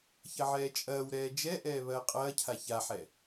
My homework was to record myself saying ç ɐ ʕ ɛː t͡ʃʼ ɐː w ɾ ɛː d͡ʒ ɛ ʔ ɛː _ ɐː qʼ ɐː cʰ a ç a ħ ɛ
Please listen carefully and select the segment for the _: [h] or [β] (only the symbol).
β